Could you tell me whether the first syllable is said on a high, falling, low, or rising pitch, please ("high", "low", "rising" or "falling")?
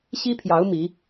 high